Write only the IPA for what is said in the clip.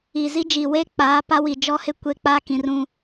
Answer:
i˨ z i˦ d͡ʒ iː˨ w e˦ k͡p aː˨˦ p a˦ w i˨ d͡ʒ ɔ˦ h ɪ˦ kʷ e˦ k͡p a˦ k ĩ˨ r ũ˦

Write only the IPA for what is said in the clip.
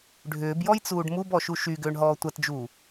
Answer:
ɖʱ ʏː b j ɔ j t͡s uː ɖ m u b ɔ ʃ u ʃ y ɡ ʏː ɳ ɦ ɔː tʷ ɐ t d͡ʒ uː

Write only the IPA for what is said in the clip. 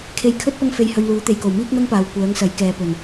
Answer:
kʰ e˧ j kʰ ɵ˥ t̚ p ɐ˥ ŋ f e˧ j h ɵ˧ ɥ l uː˨˥ t̪ e˨ j k o˨˩ w m iː˥ k̚ n̪ ɐ˥ ŋ p aː˨ w kʷ œː˨˥ ŋ s ɐ˨˥ j k ɛː˨ p ɵ˨˩ n

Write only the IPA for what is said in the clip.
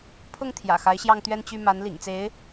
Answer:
pʰ ʊ˥˩ ŋ t̪ʰ j ä̰˨˩ x a˧˥ ɪ̯ ɕ j ɑ˥˧ ŋ t̪ ɥ ɛ˥˧ n t͡ɕ y˥˩ m a˧˥ n l ḭ˨˩ ŋ t͡s e˧˥ ɪ̯

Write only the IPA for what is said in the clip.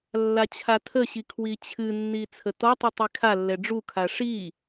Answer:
lː a t͡ɕʰ a tʰ ə ɕ i kʰ w i t͡ɕʰ ɨ nː i t͡sʰ ə t ɔ tˤ ɨ tˤ i kʰ a lː ɛ ɖ͡ʐ u kʰ a ʂ i

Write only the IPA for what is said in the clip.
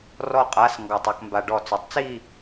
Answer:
r ɔ˥˧ qʼ a˧˥˧ s ŋ ɡ ɔ˧˩ tˤ a˧ k m b a˧ ɖ ɔ˧˩ t͡s œ˩˥ tˤ t͡s i˥˧

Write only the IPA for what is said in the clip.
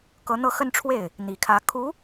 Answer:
k ɤ˧˥ n̪ ɤ˥˧ x ə˥˧ n ʈ͡ʂʰ w e˥˩ ɪ̯ | n̪ i˨˩ kʰ ä˧˥ kʰ u˧˥

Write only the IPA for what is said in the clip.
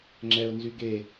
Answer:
ŋ͡ǁ ɛ ʊ̯ n z y ɡ e

